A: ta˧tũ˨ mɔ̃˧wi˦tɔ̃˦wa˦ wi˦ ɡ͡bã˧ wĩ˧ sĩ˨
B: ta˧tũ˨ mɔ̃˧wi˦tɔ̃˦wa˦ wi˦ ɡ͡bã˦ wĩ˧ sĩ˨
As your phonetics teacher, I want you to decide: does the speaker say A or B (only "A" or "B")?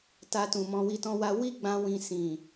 B